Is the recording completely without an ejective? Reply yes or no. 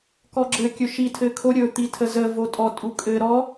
no